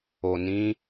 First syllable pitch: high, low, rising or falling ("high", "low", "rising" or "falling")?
low